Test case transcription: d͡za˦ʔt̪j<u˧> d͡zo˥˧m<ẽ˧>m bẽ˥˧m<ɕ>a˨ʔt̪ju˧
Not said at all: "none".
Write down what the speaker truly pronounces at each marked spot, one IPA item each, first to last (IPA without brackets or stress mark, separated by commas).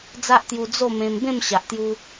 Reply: u˧, ẽ˧, ɕ